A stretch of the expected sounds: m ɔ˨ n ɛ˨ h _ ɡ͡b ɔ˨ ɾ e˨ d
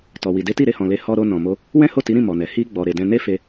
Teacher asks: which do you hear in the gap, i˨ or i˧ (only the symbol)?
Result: i˧